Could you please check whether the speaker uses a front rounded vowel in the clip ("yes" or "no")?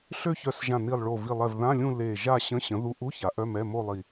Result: yes